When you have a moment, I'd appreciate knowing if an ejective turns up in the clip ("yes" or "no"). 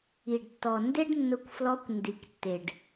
no